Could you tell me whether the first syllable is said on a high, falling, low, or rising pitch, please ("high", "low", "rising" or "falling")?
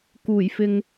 low